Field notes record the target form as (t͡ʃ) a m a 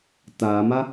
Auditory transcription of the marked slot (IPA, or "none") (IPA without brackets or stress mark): t